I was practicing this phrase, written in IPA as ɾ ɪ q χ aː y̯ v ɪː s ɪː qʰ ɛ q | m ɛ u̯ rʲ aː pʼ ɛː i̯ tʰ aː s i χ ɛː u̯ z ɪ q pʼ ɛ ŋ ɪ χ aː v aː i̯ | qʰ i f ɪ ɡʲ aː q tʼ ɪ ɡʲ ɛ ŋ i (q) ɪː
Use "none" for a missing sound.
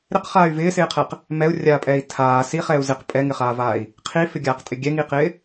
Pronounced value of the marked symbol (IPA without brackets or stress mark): q